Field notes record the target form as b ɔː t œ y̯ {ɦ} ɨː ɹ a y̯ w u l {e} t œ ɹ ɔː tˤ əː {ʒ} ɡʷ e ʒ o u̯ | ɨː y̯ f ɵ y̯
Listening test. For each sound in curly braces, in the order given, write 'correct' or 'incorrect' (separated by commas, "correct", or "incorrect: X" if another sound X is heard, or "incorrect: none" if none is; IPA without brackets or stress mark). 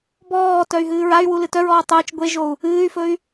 correct, incorrect: ɨ, incorrect: t͡ʃ